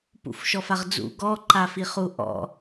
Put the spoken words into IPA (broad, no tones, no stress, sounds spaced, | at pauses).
p ṵ f ʃ ɔ f a ʁ d͡z ṵ ɡ ɔ ǃ a f i χ u ʔ ɔ̰